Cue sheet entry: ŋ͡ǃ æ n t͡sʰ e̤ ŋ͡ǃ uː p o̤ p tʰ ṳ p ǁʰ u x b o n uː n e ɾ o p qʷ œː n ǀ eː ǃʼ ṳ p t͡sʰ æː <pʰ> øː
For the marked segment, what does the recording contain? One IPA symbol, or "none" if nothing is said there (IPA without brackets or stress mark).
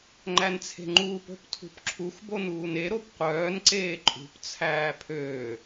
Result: pʰ